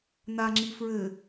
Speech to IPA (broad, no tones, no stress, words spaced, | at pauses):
naŋ͡ǁi fɹɘ